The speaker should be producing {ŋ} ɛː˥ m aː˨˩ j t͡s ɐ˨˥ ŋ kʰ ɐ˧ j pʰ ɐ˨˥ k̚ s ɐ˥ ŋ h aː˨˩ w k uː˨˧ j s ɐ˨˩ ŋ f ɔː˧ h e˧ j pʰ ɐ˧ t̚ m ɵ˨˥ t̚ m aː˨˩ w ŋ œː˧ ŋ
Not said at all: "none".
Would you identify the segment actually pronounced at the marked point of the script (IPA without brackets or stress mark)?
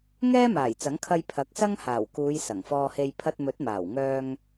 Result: ŋ